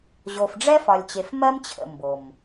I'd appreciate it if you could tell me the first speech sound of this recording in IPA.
ʑ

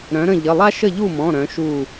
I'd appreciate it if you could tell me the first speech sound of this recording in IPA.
ɾ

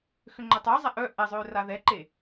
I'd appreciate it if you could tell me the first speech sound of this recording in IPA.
x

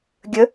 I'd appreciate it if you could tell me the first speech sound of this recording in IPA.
ɡʲ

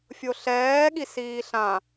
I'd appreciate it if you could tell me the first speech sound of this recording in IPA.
fʲ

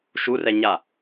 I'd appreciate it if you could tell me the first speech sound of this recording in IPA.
ʃ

